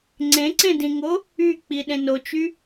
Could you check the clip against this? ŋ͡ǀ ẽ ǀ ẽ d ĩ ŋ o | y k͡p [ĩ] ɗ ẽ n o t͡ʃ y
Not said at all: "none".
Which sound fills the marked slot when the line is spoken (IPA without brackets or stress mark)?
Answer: i